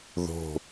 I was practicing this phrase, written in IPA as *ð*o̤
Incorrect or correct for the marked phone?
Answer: correct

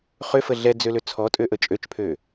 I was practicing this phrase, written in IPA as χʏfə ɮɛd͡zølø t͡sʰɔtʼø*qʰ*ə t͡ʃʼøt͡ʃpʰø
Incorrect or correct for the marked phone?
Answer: incorrect: ʔ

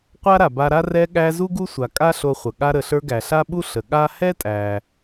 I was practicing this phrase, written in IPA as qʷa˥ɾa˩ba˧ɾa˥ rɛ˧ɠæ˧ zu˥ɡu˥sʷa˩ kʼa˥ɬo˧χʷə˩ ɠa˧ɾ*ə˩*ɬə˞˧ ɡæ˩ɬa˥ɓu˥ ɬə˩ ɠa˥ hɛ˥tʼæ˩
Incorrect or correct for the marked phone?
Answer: correct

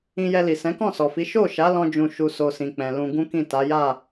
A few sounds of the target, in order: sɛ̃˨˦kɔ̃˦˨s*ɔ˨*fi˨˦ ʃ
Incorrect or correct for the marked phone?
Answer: correct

